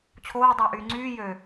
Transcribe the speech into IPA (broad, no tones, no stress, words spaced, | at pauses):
t͡ɕʰoː dˤɑʔyːŋ͡ǀyː jø